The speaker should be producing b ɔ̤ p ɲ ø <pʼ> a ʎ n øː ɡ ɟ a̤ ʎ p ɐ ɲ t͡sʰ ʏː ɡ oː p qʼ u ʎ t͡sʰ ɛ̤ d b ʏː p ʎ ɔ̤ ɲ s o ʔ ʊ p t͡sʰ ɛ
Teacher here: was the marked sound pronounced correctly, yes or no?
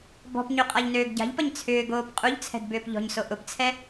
no